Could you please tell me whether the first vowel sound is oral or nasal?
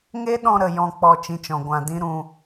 oral